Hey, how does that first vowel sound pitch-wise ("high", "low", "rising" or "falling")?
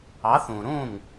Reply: rising